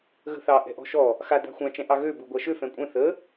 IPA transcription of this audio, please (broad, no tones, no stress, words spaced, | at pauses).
ɣə̤θɑ ʔɛ̤ʔɔ̤ʃɔ | xa da̤xʷã t͡ʃɛ̃ʔɑɣø buɡʷaʃø fɛ̃kʷʼɛ̃ θə